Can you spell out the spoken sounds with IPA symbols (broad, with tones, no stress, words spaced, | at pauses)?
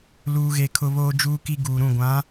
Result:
luː˦ɣe˦kʰʊ˦ βoː˦d͡ʒuː˦ki˦ ɡuː˨ɾũ˦˨ɡʷã˨˦